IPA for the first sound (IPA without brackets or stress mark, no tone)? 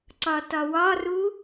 ǀ